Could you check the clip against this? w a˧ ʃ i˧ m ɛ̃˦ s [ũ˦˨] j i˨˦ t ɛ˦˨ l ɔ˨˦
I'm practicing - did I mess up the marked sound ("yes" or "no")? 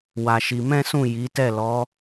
no